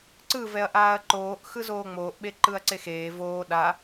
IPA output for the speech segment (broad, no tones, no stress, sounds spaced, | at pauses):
ǀ ɯ v ɛ ɐ̯ ʔ aː ɐ̯ ǃ oː ʔ x ɯ z oː ŋ͡m oː ʔ ɓ e ǃ ɯ ɐ̯ ǀ e x eː v oː ɗ a